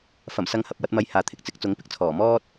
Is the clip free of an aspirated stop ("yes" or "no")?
no